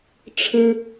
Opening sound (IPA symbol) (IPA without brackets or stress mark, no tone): ʈ͡ʂʰ